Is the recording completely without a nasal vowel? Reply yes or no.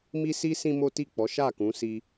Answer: no